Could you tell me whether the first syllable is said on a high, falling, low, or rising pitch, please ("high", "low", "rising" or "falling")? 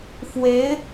rising